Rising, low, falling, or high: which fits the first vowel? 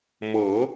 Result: rising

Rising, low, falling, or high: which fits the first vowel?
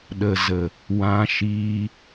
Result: low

